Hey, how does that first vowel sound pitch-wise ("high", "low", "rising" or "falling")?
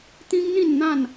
high